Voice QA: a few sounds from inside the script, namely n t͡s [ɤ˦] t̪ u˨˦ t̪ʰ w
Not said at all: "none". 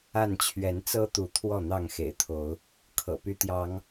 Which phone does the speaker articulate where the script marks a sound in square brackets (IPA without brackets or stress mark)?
ɤ˦